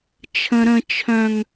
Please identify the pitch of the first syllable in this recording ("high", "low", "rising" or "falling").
high